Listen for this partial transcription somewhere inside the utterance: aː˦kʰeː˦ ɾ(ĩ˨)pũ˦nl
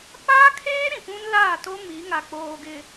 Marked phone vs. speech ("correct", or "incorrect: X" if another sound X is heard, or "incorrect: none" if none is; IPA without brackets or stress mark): correct